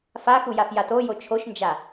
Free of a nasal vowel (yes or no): yes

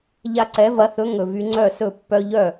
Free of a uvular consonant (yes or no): yes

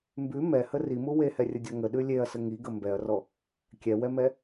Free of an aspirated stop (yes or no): yes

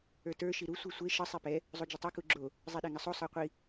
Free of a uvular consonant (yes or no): no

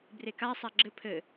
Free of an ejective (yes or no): yes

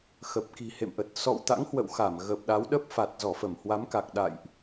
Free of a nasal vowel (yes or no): yes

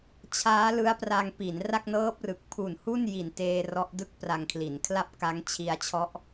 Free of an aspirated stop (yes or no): no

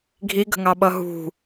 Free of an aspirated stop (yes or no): yes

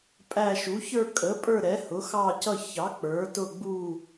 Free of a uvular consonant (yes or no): yes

